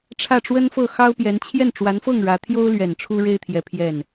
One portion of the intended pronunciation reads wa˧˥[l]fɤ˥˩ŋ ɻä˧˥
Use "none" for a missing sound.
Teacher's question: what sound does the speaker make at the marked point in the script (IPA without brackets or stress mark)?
n